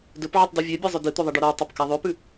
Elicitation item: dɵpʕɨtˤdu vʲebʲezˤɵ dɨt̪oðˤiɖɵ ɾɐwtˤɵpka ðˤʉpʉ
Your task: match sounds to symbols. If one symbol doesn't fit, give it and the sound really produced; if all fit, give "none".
none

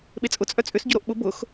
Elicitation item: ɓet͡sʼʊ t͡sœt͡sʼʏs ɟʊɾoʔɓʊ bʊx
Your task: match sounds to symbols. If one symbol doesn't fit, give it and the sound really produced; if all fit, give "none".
t͡s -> t͡sʼ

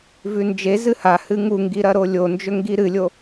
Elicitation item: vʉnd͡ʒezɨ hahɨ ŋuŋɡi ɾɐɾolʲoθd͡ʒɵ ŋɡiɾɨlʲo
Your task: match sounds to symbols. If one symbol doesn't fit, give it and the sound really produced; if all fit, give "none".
θ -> n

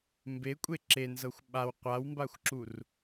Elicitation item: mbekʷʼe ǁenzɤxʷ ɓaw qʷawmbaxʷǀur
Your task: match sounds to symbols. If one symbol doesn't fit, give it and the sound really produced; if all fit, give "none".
ǀ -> ǁ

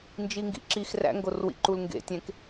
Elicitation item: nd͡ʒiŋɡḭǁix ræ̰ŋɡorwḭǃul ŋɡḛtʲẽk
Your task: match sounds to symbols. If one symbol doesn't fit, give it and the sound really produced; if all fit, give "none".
none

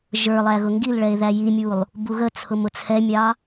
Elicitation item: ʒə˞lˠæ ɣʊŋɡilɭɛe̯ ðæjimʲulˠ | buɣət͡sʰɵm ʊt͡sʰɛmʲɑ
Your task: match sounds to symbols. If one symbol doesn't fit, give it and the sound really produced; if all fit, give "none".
ɵ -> ʊ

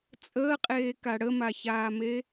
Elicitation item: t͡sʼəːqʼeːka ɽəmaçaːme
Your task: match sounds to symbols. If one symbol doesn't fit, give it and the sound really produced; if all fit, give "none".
none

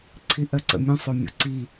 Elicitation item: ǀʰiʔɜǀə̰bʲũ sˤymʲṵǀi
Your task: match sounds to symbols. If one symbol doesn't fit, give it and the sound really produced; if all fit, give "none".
bʲ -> mʲ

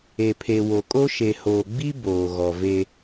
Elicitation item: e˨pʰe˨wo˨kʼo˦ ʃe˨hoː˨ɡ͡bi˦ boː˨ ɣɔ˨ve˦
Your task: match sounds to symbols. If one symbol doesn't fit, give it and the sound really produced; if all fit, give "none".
none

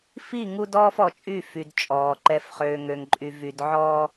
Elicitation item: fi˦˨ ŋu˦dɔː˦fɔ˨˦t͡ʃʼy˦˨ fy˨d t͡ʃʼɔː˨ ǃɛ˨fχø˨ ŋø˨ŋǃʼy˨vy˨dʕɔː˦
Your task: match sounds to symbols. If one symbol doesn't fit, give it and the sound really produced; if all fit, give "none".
none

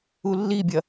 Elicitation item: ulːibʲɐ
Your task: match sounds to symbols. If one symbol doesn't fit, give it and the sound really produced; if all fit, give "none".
none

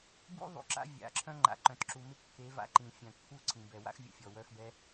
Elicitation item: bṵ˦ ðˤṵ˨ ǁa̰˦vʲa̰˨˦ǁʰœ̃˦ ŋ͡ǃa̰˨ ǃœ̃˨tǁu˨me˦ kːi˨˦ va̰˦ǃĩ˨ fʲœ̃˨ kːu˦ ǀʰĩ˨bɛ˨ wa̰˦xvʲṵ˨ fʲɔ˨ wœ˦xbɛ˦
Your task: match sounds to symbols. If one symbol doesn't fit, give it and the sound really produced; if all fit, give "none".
i˨˦ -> e˨˦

